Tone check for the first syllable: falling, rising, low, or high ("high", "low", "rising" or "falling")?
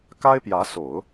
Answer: high